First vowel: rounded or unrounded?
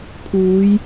rounded